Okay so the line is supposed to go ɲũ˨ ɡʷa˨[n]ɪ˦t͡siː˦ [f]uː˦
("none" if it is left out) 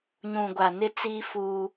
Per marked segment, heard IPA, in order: n, f

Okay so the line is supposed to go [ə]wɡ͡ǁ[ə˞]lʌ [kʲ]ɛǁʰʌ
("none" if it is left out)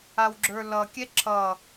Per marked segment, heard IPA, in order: a, ə˞, kʲ

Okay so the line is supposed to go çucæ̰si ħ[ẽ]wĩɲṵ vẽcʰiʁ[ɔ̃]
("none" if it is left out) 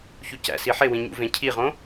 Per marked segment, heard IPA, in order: e, õ

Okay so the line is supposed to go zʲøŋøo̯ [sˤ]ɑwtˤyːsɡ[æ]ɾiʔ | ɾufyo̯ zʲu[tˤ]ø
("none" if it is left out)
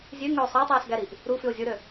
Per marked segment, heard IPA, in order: sˤ, æ, ɾ

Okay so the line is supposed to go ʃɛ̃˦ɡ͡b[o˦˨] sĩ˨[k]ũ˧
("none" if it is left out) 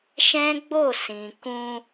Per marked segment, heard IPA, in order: o˦˨, k

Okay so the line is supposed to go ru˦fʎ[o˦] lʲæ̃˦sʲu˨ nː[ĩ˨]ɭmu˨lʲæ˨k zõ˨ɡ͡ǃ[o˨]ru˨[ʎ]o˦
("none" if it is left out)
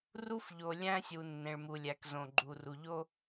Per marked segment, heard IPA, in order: o˨, ẽ˨, u˨, ʎ

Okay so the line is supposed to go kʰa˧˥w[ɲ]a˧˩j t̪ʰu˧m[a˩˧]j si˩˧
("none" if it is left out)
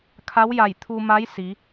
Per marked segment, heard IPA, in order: j, a˧˥

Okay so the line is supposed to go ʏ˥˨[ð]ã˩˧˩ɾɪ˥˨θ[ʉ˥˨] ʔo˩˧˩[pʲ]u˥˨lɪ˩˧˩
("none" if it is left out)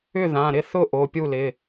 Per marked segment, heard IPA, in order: ð, ʊ˥˨, pʲ

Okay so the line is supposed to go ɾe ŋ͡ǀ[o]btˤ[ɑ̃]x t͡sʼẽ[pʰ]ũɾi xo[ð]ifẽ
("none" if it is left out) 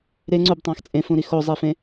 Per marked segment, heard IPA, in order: u, ɑ̃, f, zˤ

